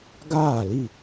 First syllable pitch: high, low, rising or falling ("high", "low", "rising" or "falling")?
falling